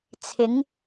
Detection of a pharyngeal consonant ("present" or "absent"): absent